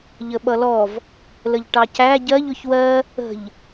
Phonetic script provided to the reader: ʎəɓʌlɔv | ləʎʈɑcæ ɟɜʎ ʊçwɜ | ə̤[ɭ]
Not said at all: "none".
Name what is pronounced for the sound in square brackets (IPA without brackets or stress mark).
ʎ